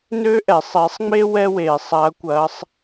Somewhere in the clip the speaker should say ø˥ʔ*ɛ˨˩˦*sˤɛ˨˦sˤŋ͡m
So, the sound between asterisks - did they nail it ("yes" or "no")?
yes